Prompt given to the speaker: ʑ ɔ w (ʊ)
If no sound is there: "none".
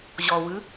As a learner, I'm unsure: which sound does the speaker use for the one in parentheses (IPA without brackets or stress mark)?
ɯ